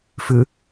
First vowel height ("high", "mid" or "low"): high